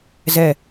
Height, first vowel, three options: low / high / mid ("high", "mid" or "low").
mid